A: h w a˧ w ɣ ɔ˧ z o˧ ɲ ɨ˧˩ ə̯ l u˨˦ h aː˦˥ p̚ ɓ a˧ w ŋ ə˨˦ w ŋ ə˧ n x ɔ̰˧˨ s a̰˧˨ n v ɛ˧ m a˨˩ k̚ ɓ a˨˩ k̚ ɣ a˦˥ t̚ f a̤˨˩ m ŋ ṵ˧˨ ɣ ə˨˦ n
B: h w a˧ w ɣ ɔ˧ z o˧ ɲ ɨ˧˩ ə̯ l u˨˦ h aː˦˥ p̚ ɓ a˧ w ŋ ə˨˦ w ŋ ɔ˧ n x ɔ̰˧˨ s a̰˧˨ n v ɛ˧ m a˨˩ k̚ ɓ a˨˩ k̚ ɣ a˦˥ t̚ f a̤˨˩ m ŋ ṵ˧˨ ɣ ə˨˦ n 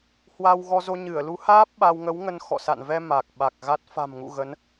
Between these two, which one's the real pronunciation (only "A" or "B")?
A